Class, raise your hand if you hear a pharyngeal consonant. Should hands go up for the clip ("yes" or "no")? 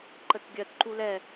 no